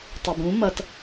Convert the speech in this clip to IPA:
tˤʌbũ mʌt

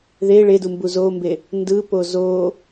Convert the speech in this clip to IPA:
ðe ɭedumbu zombe | ndɯpo zo

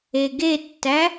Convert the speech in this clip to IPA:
eɡetːæ

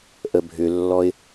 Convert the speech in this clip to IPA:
ʔəbʱʏlːɔɪ̯

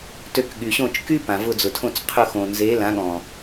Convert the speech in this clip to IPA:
tø˧kɠy˨ɕõ˦˨t͡ʃ ky˦ pã˨vʊ˧d͡zʊ˨tʰõ˦˨t͡s qʰʊ˦˨xõ˨ nze˨˦lã˨˦ɠɔ̃˨

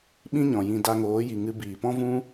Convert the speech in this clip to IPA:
ɓĩ˦ɲɔ̃˨jĩ˧ da˧ŋoː˨˦ji˨ ŋɨ˧biː˨pɔ̃˦ vũ˦

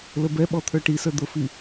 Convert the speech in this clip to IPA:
ləbɛ ɓɔt̪ʰə˞ʈisə˞ d̪ʊfi

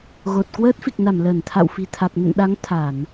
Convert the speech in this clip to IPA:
ɣo˨˩t̚ kwəː˦˥t̚fi˨˩k̚na˧˩m ləː˧˩nt̪ʰa̰˧˨wfi̤˨˩ t̪ʰa˨˩k̚nə̰˧˨nɗa˨˦ŋ t̪ʰa˧˩˨n

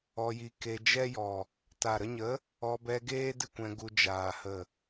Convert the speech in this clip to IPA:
ɔ˧ji˧ ke˧d͡ʒɛ˦jɔ˨ | ta˨ɾə˧ɲə˨˦ | ɔ˧ bɛ˧ ɡeː˦ dɨ˦kʷɛ̃˧ɡu˧ d͡ʒaː˨ hə˨

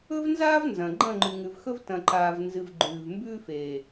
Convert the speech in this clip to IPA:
ɵ˦vnzaː˦v nzɐ̃˨ ɡ͡ǃɐ̃˦˨ŋ͡ǃʉ˨ŋʉ˨vxɵ˦v tɐ̃˨ǃaː˨v nzɨ˨v ɡ͡ǃʉː˨v mbʉː˦feː˨

